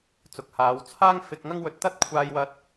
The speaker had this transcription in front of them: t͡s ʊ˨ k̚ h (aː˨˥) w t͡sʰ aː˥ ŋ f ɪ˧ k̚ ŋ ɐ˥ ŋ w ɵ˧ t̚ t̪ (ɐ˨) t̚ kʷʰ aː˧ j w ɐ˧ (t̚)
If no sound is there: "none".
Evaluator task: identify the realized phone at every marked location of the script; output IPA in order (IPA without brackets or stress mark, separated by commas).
aː˨˧, ɐ˥, t̚